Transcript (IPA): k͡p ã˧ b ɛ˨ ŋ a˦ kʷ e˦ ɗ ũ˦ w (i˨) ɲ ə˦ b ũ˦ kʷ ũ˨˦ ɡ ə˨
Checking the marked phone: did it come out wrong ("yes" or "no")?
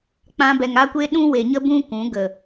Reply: yes